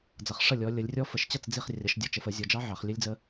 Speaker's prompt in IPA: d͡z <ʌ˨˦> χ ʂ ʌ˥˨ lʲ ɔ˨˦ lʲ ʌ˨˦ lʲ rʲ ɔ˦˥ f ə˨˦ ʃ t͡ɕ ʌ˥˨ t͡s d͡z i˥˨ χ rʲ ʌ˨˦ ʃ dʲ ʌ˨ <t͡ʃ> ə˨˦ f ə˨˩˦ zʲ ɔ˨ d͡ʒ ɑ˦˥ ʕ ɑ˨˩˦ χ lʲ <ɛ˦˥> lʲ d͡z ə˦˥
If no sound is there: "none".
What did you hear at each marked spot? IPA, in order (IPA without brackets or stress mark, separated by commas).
ʌ˨˦, t͡ʃ, ə˦˥